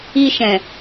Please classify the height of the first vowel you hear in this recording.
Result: high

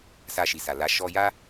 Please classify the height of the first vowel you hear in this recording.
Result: low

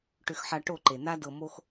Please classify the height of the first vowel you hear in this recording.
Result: high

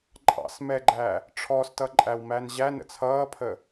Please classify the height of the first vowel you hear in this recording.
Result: low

